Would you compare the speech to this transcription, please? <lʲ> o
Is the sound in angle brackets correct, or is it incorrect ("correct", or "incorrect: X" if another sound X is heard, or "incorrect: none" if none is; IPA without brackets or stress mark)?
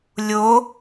correct